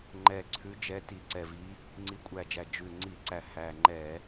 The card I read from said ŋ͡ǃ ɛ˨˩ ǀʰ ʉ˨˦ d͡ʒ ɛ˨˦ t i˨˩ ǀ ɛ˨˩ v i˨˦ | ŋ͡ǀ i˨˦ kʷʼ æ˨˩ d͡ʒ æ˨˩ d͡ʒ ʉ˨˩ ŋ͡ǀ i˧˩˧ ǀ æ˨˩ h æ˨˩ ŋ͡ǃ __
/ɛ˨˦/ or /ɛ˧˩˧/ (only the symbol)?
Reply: ɛ˧˩˧